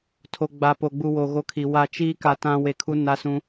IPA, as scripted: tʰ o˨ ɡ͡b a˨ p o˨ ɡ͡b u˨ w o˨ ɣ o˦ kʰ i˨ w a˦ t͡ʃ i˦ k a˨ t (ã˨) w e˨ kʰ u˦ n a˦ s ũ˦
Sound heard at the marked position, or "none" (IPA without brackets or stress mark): ã˦